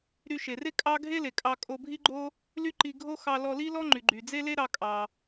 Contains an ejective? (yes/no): yes